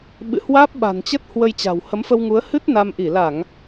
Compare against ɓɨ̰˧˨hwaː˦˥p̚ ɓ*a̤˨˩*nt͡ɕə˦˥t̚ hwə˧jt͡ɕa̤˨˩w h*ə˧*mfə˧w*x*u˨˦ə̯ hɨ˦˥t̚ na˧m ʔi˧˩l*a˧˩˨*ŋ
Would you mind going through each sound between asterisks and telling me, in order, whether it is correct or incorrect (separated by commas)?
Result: correct, incorrect, incorrect, correct